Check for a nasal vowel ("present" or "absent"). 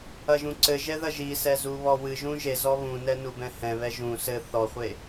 present